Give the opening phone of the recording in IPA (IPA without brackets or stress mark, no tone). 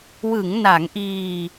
w